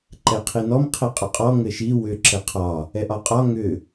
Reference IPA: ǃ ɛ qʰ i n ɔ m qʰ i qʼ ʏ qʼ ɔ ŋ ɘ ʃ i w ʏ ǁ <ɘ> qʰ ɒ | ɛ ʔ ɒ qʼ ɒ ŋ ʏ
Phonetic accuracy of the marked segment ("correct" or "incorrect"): correct